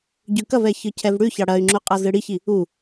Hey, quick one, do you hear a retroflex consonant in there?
yes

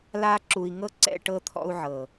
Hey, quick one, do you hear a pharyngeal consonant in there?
yes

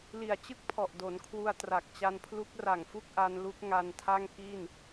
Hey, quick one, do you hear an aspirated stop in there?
yes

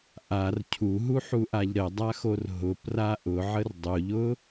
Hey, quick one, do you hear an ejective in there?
no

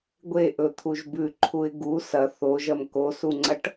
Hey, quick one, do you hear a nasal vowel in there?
no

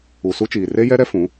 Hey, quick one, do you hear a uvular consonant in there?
no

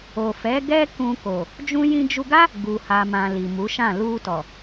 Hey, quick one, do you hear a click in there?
no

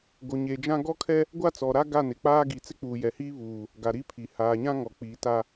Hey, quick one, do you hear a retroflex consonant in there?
no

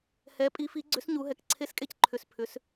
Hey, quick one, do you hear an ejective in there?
yes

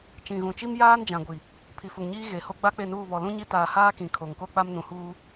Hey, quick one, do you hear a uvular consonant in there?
no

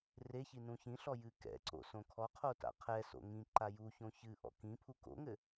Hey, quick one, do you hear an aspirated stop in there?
yes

